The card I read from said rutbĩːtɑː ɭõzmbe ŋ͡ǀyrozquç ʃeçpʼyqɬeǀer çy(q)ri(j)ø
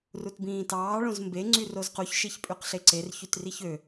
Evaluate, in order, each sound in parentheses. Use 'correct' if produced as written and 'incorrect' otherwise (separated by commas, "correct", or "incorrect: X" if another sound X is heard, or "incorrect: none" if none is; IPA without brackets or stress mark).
incorrect: t, incorrect: ç